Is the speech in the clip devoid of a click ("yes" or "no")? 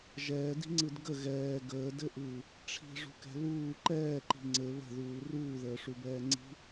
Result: no